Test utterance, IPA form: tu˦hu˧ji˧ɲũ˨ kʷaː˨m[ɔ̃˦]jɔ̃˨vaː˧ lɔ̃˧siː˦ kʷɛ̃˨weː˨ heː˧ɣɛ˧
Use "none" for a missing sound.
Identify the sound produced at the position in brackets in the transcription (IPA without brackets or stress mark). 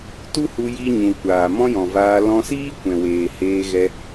ɔ̃˦